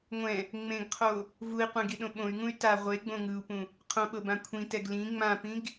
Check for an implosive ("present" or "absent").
present